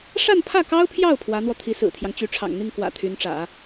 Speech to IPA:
ʂ a˥˧ n pʰ ä˥˩ k ɑ˥ ʊ̯ pʰ j ɑ˥˩ ʊ̯ pʰ w ä˧˥ n̪ w ɔ˧ t̪ʰ i˧˥ s ɹ̩˨˩ t̪ʰ j ɑ˦ ŋ t͡ɕ y˧˥ ʈ͡ʂʰ ɑ̰˨˩ ŋ n̪ i˥˩ ŋ k w ä̰˨˩ t̪ʰ y˧˥ n ʈ͡ʂ ä̰˨˩˦

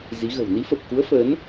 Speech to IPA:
z i˨˦ ɣ ə̤˨˩ w n i˨˦ f ə˨˩ p̚ k u˨˦ ə̯ f əː˨˦ n

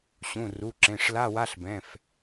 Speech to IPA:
ɕ ũ˩˧˩ r u˩˧˩ ǁ ẽ˩˧˩ ʂ l a˧˥˧ w a˧˥˧ ɬ b ɛ̃˩˧˩ f

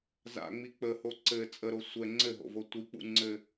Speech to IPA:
z a̰ ŋ͡m i k͡p ə h o ǀ ɘ t͡sʼ ə ɾ o sʷ ɛ ŋ͡ǀ ɘ ɦ o̰ v o tʷ i k͡p ṵ ŋ͡ǀ ɘ

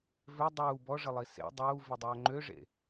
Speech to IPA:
v ø dˤ uː b ɔ ʐ ə lˠ i s ḛ dˤ uː v i dˤ œː ŋ͡ǃ ø ʐ ḛ

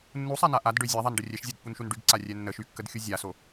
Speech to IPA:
nː u sˤ a n a ʔ a d ɖ ø zʲ a ðˤ a n ɖ ə rʲ ɛ ʃ zʲ o d pː u n ʃ u n ɖ y ɡ ǀ a rʲ ɛ nː ə ʃ y kː ə d xʲ u zʲ a s o

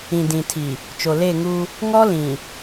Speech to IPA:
ĩ˨ d ĩ˨ tʰ i˨ | t͡ʃ o˨ l e˦˨ ŋ u˦ | ŋ ɔ˦ l ĩ˨

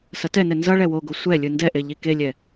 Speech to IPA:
s ʌ t ɛ n ɛ n z ʌ ɭ ɛ w o ɡ o sʷ ɛ lʲ ɯ n d ɛ ʔ e ʎ i k e lʲ ɛ

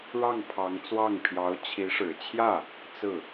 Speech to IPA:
ɻ ɑ˥˩ ŋ pʰ ɑ˧˥ ŋ t͡s w ɑ˥˩ ŋ pʰ j ɑ˧˥ ʊ̯ t͡ɕʰ i˧˥ ʂ ɻ̩˨˩ t͡ɕʰ j ä˥˩ | t͡s ɹ̩˥˩

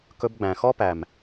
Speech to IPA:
k ɵ˧ b ɡ͡b æ̃˨ x ɔ˦ p æ˨ m

